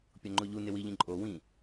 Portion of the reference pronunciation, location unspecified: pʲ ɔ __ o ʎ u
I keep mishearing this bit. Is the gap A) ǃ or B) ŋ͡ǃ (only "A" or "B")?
B